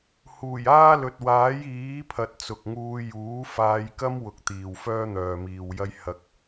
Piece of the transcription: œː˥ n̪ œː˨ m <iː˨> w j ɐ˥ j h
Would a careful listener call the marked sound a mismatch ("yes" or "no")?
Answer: no